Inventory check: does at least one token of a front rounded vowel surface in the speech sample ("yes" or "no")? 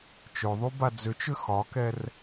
yes